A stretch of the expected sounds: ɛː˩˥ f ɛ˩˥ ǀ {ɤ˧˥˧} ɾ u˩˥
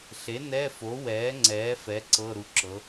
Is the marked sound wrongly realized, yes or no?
no